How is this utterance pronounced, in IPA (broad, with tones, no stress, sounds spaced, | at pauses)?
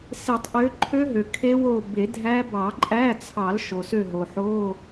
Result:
s e˨˩˦ tˤ ʔ ø˨˦ ǃʰ ø˦˥ ɦ ø˩ kʰ e˦˥ w o˦˨ b e˨˩˦ dʱ æ˦˥ b ɑ˨˩˦ ǃʼ æ˧˥˧ t͡sʰ ɑ˨˩˦ l ʃ o˩ s ø˦˨ ɦ o˩ ħ o˧˥˧